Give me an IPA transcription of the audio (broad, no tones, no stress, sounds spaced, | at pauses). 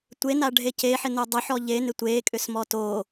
tʷ e n a ɖʱ e c e ħ ɪ n o dˤ ʊ ħ ɔ ʎ e n ɪ tʷ e kʼ ʏ s m ɔ t o